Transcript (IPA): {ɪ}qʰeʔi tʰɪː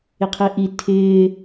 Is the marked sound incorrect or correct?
correct